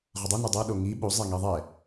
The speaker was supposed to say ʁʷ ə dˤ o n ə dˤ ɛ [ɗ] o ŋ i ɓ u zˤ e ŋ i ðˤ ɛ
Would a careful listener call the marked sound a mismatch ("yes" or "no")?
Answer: no